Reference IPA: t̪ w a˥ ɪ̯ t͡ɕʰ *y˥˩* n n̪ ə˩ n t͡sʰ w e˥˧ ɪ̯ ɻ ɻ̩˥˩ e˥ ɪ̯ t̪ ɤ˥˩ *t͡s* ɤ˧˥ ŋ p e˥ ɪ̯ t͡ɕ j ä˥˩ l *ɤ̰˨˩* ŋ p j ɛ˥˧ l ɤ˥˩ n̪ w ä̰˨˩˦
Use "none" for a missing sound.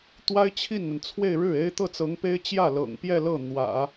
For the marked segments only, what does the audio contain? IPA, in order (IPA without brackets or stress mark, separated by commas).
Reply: i˥˩, t͡s, ɤ̰˨˩